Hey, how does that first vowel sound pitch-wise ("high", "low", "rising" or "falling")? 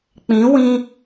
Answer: rising